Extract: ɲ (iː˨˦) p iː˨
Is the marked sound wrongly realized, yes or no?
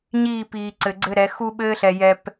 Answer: yes